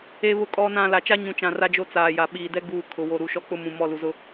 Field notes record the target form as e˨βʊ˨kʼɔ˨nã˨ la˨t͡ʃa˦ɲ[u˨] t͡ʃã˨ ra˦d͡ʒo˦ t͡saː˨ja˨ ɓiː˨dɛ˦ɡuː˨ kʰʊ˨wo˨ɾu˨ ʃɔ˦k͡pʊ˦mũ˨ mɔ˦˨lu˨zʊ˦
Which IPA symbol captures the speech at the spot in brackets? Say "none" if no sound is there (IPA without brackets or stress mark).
ũ˨